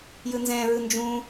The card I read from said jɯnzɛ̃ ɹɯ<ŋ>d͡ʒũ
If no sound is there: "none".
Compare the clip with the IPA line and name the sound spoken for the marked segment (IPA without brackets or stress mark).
n